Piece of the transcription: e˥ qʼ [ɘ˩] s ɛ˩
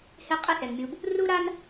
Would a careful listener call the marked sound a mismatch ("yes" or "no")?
yes